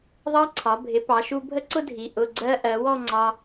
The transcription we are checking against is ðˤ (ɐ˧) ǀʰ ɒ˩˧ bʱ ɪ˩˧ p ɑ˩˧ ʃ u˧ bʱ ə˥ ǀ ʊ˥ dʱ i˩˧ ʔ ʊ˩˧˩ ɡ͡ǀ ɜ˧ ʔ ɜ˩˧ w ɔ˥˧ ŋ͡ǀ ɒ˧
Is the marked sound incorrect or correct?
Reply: incorrect